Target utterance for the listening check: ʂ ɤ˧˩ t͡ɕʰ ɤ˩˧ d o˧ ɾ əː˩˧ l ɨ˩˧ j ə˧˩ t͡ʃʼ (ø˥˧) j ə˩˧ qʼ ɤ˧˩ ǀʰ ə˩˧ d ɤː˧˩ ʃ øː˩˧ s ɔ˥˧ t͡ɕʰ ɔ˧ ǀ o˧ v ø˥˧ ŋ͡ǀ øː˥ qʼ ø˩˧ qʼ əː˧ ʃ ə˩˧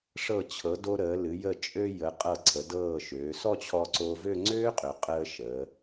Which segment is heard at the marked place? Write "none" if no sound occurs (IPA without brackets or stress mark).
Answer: ø˧